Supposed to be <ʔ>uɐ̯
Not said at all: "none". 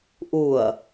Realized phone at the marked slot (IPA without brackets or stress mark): ʔ